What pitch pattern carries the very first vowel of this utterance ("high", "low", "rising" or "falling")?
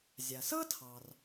low